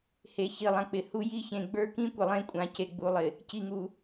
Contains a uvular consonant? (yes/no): no